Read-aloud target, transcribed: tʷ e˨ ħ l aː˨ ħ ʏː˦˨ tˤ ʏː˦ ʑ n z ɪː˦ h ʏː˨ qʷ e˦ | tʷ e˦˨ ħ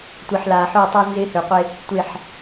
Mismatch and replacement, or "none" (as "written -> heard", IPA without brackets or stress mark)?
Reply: ʑ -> z